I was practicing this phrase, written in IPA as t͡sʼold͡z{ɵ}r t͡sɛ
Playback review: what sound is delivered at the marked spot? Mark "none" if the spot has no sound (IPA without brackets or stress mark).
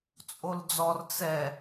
ɔ